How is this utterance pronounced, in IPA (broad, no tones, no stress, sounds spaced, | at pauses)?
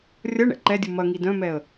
rʲ ɐ ɳ ɛ̰ ǃ ɛ dʲ u m ɐ ŋ i d œ̃ m ɛ ə̯